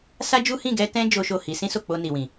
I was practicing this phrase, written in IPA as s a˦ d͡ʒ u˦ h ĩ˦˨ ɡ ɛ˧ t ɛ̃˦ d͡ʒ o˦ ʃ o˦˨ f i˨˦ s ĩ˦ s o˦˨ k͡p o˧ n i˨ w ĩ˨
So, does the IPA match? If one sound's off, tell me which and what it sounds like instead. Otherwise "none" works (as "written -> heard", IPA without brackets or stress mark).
f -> h